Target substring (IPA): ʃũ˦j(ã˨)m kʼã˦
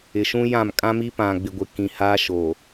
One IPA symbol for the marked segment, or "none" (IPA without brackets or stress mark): ã˦˨